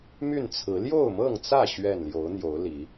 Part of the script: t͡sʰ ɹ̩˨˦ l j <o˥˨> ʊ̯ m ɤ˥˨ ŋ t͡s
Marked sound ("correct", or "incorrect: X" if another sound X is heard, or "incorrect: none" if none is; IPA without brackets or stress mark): correct